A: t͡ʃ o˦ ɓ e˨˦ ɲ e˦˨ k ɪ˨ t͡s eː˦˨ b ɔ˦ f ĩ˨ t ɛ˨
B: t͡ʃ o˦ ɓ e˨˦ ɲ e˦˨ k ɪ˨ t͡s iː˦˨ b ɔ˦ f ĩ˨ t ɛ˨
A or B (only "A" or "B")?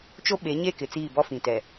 B